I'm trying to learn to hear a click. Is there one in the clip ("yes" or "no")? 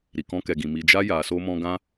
no